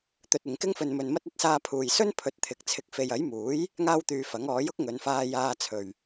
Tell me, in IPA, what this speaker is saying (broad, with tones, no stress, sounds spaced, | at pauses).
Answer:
t̪ ɵ˧ t̚ ɪ˨ ŋ k ɪ˥ ŋ f ɵ˧ n m ɵ˧ n m ɐ˥ t̚ ɐ˥ t̚ s aː˧ pʰ uː˨ j s ɵ˥ n pʰ ɵ˨˥ t̚ t̪ʰ ɪ˨˥ k̚ t͡sʰ ɪ˨˥ k̚ f e˨ j ɐ˨˥ j m uː˨˥ j | ŋ aː˥ w t̪ yː˧ f ɐ˨˥ ŋ ɔː˨˥ j ʊ˥ k̚ ŋ ɵ˨˧ n f aː˧ j aː˧ t͡sʰ ɵ˨ ɥ